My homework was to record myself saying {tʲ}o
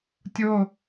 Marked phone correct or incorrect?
correct